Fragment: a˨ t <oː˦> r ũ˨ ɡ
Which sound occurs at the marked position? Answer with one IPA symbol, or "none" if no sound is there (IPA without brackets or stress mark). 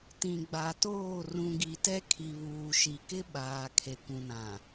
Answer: oː˦˨